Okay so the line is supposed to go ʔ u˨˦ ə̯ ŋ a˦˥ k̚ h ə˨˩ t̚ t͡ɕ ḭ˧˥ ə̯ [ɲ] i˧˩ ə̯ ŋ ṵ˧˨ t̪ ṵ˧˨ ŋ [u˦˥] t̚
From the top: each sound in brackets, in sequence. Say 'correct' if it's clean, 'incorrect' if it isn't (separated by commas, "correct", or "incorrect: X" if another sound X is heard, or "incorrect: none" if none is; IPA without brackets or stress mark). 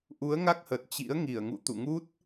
incorrect: ŋ, correct